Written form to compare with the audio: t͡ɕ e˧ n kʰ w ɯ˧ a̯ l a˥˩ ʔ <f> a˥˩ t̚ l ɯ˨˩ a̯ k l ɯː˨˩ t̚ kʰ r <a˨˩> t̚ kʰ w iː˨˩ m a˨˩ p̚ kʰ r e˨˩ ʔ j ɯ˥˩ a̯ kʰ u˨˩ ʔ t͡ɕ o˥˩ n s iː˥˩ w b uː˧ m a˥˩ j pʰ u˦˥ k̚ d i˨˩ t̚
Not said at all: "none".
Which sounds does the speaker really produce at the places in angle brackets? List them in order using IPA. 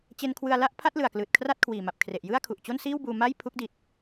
pʰ, a˥˩

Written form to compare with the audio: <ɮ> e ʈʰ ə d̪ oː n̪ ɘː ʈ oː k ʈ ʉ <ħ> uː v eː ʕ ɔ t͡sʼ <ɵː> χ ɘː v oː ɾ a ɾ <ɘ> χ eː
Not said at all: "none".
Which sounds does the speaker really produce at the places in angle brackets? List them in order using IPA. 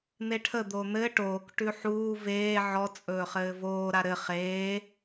n̪, ħ, ɵː, ɘ

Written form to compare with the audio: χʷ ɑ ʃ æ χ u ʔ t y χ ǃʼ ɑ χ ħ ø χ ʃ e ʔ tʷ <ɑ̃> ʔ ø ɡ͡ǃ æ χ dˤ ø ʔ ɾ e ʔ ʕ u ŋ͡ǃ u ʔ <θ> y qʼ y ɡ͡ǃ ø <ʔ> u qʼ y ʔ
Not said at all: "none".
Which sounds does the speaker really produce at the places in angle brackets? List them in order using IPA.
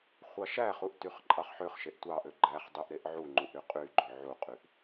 ɑ, ɾ, ʕ

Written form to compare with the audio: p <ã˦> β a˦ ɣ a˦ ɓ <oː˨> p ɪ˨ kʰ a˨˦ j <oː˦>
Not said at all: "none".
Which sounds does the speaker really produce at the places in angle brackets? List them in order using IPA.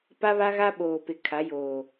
a˦, oː˨, oː˨

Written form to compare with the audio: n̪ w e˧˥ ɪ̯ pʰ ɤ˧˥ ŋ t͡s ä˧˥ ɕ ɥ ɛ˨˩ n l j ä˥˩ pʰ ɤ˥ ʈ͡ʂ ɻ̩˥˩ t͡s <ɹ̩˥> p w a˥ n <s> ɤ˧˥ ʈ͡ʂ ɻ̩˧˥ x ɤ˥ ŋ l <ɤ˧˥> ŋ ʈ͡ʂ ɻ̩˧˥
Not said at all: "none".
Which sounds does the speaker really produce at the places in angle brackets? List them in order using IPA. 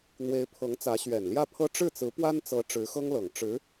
ɹ̩˧˥, t͡s, ɤ˨˩

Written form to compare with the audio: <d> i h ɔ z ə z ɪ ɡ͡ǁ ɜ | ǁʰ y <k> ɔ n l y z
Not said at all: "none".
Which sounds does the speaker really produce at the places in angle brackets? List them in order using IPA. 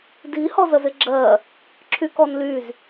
d, k

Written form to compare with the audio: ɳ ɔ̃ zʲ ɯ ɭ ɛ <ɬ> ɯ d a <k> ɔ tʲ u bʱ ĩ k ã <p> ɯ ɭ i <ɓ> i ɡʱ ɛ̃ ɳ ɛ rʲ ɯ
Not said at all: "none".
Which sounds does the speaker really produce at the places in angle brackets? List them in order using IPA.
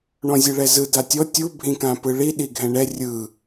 z, tʲ, p, ɗ

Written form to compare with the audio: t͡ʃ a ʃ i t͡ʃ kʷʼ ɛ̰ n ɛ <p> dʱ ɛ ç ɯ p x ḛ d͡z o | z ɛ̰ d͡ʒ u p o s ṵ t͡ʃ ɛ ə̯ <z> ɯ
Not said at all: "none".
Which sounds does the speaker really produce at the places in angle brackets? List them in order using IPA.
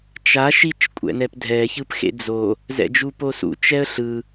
p, ɬ

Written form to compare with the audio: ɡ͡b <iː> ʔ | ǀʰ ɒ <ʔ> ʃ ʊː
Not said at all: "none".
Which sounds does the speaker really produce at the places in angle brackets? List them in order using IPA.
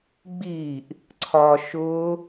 iː, none

